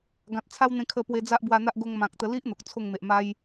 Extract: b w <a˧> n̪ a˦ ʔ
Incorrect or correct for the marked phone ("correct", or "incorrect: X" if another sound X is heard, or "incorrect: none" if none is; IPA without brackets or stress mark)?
correct